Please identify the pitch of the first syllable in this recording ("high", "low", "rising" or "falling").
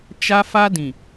high